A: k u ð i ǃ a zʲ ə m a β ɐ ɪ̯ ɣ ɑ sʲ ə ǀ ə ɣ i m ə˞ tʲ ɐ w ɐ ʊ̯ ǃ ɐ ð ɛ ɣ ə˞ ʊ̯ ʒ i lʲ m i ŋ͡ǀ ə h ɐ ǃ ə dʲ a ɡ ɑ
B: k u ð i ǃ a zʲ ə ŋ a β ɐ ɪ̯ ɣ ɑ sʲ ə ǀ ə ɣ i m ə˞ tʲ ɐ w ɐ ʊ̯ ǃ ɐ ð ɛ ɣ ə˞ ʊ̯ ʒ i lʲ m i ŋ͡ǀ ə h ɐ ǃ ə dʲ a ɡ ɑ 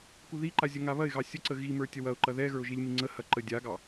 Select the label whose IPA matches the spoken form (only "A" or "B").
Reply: B